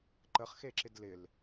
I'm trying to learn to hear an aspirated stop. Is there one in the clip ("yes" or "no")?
no